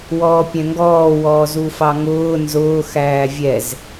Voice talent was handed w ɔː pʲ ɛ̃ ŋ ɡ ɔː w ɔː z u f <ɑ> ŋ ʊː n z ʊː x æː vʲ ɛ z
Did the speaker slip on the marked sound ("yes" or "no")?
no